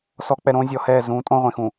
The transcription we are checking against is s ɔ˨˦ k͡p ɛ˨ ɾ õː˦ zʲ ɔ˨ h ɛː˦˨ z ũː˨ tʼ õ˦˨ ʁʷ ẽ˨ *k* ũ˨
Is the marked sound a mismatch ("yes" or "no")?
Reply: yes